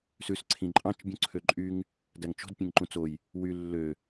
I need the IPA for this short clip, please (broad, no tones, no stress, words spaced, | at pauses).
sʉs ǀʰĩǃʼɑ̃t͡ʃ bʲũǀʰøǃʼyŋ | dæŋt͡ʃo̤d pʲẽŋǃũt͡soj | wy lːø